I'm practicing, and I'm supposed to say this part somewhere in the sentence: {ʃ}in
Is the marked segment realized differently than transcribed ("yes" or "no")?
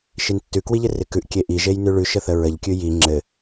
no